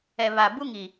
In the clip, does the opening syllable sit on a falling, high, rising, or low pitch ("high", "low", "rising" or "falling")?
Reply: low